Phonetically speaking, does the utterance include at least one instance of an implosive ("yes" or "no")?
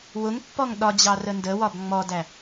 yes